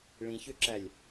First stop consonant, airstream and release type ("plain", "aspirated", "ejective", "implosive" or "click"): click